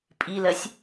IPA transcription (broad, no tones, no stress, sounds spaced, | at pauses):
pʼ i l ɜ sʲ